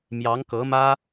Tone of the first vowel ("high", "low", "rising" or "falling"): rising